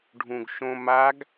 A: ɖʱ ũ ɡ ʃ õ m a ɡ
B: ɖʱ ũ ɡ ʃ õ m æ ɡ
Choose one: A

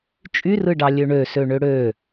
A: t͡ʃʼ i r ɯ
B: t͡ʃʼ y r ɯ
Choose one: B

